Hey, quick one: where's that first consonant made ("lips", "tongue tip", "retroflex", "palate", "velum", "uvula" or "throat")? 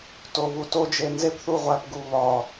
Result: tongue tip